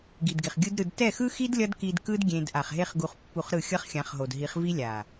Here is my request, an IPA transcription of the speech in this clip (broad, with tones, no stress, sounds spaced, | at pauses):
ɡ i˨ d ɡ e˨ χ ɡʲ ɯ˦ d ɾ ɯ˧ d t ɛ˦˨ x ɯ˦ x i˦ d lʲ ʌ˦ d k i˧ d k ɯ˦ d ɡʲ ẽ˧ d ʔ a˨ χ ɦ e˦ χ ɡ u˧ χ pː u˧ χ ɾ ɯ˦˨ xʲ ʌ˦ χ xʲ ã˨˦ χ ɦ o˨ d ɦ i˨˦ χ v i˦ lʲ a˨